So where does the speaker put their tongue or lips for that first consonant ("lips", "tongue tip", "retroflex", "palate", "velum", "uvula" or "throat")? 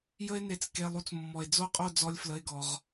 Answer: palate